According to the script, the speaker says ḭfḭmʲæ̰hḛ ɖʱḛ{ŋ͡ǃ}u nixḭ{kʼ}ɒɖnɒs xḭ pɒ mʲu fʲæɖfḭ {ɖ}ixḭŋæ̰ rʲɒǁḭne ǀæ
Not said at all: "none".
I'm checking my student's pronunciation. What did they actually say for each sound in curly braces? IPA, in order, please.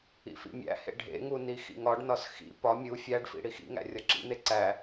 ŋ, ŋ, ɽ

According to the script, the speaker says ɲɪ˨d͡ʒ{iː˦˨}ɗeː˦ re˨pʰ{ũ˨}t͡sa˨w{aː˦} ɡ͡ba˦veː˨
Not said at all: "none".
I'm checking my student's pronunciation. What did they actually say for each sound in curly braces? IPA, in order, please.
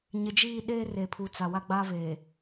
iː˦˨, u˨, a˦

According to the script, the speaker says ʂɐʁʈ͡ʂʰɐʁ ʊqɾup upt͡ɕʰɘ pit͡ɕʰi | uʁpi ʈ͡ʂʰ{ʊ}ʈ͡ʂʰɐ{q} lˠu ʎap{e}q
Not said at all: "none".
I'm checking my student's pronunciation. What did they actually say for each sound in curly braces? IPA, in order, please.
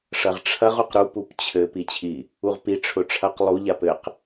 ʊ, q, ɘ

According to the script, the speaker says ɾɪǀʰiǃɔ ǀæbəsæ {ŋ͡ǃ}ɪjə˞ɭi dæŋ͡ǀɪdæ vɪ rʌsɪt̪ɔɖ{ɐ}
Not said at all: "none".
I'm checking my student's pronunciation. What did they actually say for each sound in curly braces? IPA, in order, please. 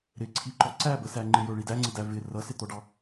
ŋ͡ǃ, ɑ

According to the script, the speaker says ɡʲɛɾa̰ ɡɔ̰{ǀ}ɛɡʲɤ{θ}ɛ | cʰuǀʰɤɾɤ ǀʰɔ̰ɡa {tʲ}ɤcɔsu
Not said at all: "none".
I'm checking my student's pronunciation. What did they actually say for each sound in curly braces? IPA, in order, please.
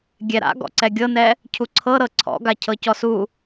ǀ, n, cʰ

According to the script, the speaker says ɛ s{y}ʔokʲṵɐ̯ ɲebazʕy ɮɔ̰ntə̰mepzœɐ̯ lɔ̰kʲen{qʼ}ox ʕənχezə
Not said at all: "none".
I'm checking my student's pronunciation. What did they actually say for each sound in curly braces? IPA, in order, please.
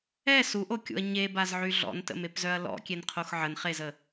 u, qʰ

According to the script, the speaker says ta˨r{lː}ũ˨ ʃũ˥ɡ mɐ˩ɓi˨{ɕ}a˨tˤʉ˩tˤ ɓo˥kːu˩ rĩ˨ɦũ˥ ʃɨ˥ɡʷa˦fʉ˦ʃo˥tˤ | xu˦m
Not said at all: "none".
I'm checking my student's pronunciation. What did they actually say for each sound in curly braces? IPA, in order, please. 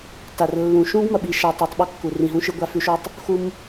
lː, ʃ

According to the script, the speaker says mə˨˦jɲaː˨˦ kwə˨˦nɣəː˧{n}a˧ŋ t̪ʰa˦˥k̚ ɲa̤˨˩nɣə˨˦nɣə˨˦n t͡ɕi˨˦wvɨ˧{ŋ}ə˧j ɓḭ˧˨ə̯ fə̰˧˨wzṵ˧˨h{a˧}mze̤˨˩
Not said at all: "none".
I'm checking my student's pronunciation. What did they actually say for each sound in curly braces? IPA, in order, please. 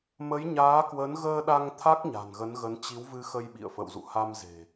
ɗ, x, a˧

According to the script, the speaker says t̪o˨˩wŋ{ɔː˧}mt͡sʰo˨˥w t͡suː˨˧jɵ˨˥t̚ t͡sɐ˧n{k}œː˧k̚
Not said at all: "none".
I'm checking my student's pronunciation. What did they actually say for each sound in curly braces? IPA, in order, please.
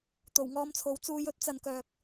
ɔː˧, k

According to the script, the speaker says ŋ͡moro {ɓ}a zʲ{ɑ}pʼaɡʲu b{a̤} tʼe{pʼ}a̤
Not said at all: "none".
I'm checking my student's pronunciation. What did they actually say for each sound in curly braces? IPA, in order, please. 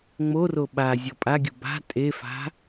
ɓ, ɔ, a̤, f

